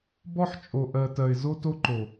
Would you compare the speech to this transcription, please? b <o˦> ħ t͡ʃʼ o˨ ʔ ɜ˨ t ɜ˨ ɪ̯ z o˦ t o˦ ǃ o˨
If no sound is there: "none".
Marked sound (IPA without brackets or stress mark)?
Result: ɔ˦